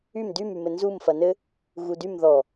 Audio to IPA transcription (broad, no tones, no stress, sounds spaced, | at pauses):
y m d y m y m ɘ n z u m f ɐ n ɘ | ɣ u d y m ð ɔ